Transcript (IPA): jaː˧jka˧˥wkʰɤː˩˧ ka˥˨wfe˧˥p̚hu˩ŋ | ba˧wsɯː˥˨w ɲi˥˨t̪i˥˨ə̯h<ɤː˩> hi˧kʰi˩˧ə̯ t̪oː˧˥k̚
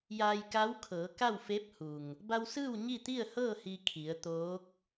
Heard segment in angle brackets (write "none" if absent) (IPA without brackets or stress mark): ɤː˥˨